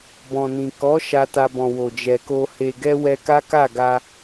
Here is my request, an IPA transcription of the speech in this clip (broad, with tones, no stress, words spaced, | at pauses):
bɔ̃˨nĩ˨ kɔ˨˦ ʃa˧ta˧bɔ̃˨ wo˨d͡ʒɛ˨ko˧ he˨ɡɛ˧ wɛ˧ka˦ka˦˨ɡa˧